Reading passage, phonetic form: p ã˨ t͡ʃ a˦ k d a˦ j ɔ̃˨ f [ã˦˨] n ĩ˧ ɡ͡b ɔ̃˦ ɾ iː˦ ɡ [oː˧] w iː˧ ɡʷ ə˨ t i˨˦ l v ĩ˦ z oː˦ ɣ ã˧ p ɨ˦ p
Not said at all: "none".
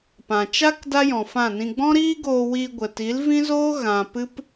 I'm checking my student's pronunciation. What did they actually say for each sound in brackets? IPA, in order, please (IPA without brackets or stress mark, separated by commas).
ã˦˨, oː˧